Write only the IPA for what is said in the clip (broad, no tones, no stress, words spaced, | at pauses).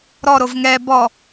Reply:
ɾɔɾov ŋɛ bɔ